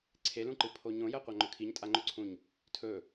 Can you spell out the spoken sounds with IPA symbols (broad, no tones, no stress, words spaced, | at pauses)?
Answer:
ǀʰelũǃɨ pʰoɲõ jɐqʷaŋ͡ǃɵkʰiɲ tʼaŋ͡ǃɵǀʰũɲ | tʰɵ